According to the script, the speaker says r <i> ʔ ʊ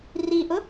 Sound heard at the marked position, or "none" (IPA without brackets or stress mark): i